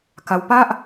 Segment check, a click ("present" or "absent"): absent